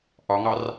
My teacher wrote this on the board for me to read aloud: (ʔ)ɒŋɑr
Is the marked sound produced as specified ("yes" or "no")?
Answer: yes